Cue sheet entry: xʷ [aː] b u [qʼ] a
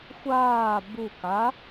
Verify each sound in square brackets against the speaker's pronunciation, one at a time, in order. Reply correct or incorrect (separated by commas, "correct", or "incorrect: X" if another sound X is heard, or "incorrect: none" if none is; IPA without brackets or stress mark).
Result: correct, incorrect: k